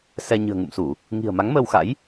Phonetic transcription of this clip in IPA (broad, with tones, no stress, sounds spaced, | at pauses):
s ɛ˧ ɲ ɨ̤˨˩ ə̯ ŋ ṵ˧˨ m s u˧˩˨ | ŋ i̤˨˩ ə̯ m a˨˦ ŋ m əː˧ w x a̰˧˥ j